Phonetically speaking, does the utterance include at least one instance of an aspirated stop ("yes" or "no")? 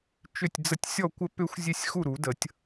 no